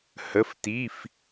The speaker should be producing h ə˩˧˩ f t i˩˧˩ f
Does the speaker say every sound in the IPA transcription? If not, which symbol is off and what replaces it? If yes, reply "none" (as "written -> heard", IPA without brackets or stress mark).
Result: none